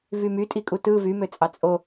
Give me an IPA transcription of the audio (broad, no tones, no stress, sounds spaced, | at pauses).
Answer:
v y m y tʼ i kʼ u t ɯ v y m ø t͡sʼ ɑ t͡sʼ o